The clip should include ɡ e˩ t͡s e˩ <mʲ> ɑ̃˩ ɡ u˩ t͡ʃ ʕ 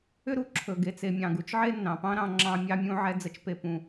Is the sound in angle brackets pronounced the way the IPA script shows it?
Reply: yes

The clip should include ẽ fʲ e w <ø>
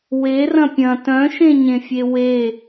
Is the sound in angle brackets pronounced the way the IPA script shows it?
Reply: no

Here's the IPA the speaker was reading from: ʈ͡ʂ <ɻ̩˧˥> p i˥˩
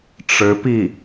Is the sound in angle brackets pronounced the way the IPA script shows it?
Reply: yes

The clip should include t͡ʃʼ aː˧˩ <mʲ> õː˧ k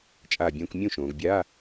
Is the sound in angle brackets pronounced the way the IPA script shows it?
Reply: no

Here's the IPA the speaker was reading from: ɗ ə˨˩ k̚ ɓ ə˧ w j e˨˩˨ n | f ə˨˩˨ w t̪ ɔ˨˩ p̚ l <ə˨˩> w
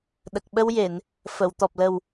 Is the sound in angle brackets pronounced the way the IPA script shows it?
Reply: yes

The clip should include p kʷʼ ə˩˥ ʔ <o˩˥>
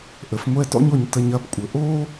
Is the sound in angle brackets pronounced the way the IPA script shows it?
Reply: no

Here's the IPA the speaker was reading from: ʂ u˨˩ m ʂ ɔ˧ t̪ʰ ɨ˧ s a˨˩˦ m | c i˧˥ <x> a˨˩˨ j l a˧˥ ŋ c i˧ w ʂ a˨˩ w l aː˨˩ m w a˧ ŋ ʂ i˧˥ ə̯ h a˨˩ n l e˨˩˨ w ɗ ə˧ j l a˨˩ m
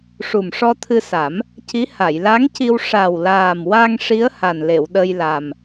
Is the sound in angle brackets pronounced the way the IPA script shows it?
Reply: no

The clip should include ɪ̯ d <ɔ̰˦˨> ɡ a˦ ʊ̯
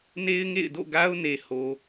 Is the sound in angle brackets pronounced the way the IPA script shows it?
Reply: no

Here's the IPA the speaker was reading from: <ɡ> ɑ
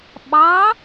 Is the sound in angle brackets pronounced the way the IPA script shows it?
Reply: no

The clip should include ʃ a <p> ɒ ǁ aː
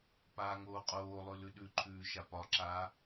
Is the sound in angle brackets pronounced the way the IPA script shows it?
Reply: yes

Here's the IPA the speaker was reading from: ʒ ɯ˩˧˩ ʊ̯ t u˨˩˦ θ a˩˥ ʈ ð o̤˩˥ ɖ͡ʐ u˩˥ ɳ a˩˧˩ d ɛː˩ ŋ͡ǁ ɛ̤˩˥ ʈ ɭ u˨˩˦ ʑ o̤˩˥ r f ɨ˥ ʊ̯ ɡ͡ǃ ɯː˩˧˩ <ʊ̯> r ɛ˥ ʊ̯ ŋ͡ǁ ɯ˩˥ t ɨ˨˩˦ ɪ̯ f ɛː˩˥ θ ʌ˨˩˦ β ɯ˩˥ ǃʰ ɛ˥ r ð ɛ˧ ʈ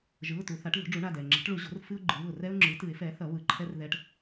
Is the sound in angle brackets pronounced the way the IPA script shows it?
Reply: yes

